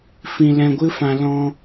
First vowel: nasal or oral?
nasal